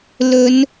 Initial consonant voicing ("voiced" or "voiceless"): voiced